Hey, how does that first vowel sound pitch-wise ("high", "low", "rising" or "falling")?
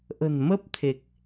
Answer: low